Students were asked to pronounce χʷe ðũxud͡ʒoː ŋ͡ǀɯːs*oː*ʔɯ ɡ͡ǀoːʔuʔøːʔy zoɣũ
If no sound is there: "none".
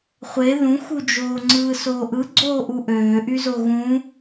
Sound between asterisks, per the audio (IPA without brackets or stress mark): oː